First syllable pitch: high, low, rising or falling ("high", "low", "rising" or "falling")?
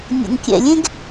low